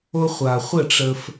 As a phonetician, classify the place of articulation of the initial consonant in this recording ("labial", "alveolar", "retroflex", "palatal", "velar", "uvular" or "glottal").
uvular